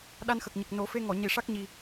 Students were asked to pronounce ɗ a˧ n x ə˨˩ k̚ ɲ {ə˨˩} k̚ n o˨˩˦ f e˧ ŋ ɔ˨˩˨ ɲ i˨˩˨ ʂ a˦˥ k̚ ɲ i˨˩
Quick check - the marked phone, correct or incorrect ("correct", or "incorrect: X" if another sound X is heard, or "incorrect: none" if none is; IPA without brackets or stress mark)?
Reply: correct